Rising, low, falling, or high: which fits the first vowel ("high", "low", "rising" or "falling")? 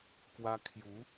high